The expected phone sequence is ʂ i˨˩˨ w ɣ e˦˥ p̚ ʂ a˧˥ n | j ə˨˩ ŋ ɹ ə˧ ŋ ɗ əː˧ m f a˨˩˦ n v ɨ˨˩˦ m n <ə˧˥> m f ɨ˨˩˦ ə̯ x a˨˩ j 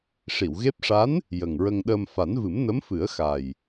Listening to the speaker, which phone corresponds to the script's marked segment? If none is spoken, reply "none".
ə˧˥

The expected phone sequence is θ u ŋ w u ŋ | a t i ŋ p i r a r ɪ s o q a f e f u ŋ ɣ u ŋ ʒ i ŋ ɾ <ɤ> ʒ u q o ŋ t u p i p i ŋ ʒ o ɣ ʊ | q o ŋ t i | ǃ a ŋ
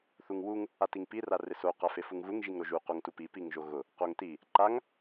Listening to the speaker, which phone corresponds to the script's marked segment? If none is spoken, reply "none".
o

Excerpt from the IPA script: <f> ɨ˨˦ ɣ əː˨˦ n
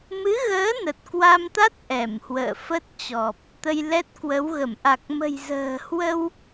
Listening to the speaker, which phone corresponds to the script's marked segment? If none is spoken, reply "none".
m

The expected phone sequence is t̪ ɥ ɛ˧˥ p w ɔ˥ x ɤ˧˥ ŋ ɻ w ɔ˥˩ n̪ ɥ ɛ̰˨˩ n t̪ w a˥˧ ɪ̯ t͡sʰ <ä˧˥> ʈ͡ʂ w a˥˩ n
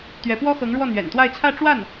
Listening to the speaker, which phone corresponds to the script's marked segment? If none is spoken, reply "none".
ä˥˧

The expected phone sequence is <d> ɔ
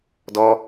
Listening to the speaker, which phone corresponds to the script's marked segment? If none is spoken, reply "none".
d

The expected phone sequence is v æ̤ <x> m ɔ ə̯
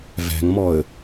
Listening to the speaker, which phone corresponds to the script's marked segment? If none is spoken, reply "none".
ŋ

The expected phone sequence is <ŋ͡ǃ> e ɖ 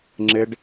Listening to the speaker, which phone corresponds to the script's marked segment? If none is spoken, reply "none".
ŋ͡ǁ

